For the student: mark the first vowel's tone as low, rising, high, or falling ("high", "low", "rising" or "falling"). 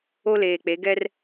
high